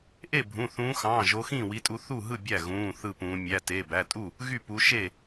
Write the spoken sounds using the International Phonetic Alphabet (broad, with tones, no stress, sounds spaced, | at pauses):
ʔ e˥˩ bʱ ũ˩˧˩ θ ũː˨˦ x ɑ̃ː˩˧˩ ʒ o˨˦ x ĩː˥˩ w i˨˦ tʼ u˨˦ θ u˥˩ ɦ ɯ˥˩ bʲ æ˥˩ ɣ ũː˩˧˩ θ ɯ˥˩ p ũː˨˦ mʲ æ˩˧˩ t e˩˧˩ b æ˩˧˩ tʼ u˥˩ | ɣ y˥˩ p u˨˦ ʃ e˥˩